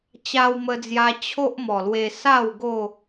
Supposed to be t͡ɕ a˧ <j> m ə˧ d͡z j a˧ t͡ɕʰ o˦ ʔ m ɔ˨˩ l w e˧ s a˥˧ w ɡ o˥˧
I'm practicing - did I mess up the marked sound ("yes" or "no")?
yes